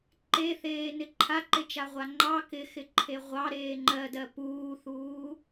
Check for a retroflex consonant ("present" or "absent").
absent